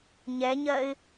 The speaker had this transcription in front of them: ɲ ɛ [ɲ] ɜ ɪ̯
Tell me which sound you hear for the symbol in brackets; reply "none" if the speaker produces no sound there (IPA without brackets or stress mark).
ɲ